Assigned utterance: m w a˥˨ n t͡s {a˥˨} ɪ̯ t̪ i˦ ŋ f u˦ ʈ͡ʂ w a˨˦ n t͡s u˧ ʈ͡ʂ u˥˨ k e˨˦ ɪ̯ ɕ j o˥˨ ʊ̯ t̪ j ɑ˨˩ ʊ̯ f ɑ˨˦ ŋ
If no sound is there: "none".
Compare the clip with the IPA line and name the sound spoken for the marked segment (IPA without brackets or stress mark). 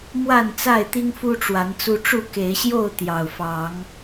a˥˨